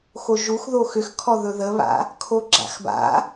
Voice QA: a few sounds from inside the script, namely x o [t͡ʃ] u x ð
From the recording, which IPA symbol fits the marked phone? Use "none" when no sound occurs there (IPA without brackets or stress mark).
ʒ